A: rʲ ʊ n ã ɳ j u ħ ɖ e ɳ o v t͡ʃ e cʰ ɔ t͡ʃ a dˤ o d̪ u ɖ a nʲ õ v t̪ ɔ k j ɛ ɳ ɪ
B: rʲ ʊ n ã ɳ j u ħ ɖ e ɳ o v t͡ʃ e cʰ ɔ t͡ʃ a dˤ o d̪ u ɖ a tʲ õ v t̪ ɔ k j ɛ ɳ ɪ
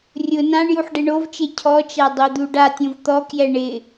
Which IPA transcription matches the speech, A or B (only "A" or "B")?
B